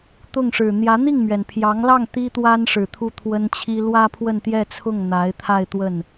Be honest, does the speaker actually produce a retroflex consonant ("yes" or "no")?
yes